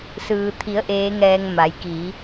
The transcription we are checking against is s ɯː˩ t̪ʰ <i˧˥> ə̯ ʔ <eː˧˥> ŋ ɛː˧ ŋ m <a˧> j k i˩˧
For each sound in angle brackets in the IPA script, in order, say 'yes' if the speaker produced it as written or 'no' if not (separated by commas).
no, yes, no